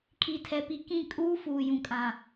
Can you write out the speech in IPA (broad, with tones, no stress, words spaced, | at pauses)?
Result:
kʰi˨tʰɛ˨pi˨kĩ˦˨ kʼuː˦fuː˨jũ˨kʼã˨